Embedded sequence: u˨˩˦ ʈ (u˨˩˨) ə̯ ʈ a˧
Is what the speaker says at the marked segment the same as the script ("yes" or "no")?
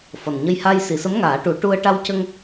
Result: no